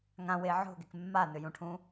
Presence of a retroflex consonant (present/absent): present